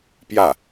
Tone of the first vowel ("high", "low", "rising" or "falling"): falling